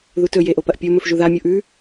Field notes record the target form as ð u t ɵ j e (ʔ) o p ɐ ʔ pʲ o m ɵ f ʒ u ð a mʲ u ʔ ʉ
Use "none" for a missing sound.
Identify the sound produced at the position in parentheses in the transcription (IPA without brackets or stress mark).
ʔ